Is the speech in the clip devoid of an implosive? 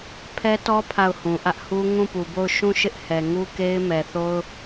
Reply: yes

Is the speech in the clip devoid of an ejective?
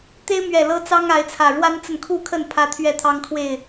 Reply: yes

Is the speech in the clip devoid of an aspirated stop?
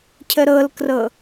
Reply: no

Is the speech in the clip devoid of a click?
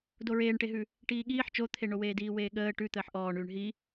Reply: yes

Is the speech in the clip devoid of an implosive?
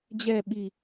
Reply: no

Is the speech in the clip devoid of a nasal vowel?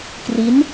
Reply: yes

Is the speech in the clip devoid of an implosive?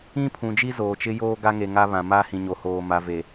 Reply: yes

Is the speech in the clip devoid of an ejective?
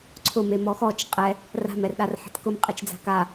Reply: no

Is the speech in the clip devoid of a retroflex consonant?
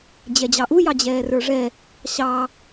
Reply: no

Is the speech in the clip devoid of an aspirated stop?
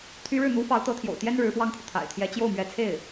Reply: no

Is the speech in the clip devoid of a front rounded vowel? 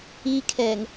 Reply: yes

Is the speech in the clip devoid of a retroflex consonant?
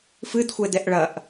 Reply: no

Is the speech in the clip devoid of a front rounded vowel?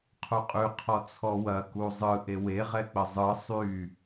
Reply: no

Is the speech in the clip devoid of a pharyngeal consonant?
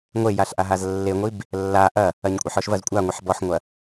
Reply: no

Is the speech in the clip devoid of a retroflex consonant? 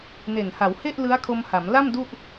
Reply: yes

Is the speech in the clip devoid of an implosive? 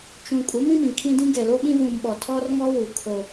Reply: no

